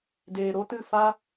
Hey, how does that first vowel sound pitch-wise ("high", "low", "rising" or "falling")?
low